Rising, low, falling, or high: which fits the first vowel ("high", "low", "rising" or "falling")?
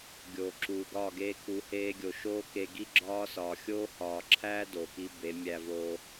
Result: low